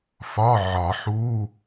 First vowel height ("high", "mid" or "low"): low